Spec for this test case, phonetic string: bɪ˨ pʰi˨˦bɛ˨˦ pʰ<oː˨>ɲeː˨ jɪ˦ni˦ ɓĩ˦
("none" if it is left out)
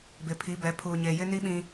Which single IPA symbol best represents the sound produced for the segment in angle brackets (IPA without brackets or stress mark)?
uː˨